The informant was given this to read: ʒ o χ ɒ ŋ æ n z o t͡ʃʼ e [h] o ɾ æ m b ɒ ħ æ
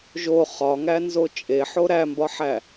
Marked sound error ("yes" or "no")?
yes